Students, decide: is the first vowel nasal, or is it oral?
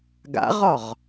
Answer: oral